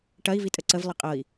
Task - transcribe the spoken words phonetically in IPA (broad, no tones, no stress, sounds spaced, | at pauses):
ʈ ɐ i̯ v i tʼ ə ǀ ə v lˠ ə qʼ ɤ i̯